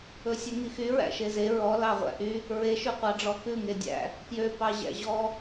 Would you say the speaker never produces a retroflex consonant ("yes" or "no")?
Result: no